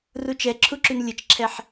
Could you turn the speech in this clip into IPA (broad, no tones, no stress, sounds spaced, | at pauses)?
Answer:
r u t͡ʃ ɛ ǁʰ u ǁ y n lʲ ə t͡ʃ ǁʰ ɛ ħ